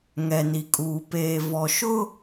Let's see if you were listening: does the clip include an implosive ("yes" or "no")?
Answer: no